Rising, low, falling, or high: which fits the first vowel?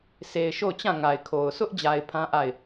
low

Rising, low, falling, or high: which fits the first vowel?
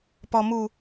low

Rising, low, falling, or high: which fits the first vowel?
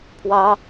high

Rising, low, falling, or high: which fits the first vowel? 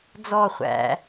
falling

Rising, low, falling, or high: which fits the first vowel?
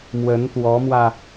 rising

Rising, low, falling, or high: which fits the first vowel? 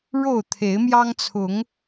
falling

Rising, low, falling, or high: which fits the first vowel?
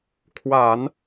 low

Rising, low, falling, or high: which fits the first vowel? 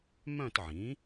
falling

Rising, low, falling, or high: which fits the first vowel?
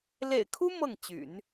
low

